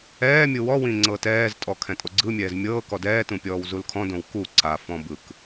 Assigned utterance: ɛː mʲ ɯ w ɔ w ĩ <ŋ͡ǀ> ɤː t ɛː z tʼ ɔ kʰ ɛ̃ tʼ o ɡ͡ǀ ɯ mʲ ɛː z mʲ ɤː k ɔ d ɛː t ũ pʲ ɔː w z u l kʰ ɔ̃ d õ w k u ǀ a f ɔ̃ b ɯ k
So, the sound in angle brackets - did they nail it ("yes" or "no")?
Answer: yes